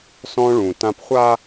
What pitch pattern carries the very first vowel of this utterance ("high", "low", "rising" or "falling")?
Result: high